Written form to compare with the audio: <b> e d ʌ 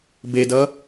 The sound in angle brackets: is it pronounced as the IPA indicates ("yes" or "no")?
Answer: yes